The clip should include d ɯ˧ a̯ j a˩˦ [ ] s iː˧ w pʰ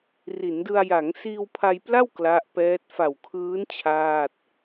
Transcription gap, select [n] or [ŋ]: ŋ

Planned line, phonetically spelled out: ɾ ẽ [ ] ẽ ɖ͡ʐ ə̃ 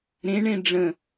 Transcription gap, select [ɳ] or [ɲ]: ɳ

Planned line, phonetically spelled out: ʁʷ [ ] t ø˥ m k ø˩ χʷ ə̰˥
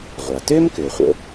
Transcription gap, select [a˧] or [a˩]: a˩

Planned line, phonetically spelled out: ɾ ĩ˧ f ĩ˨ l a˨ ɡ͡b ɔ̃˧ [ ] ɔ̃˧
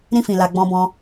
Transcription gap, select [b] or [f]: b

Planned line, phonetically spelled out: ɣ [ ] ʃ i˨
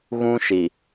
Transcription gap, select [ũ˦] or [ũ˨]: ũ˦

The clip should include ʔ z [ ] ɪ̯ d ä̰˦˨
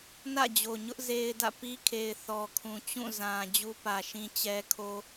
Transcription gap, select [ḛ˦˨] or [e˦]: e˦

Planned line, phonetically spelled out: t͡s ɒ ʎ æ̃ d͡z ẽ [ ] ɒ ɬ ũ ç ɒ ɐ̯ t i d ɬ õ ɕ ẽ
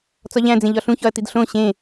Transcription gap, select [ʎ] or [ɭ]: ʎ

